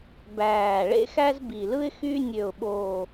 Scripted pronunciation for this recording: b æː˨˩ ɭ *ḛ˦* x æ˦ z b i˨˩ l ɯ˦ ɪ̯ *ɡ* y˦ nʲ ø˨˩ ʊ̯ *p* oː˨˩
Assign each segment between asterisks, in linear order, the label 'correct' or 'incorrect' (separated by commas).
correct, incorrect, incorrect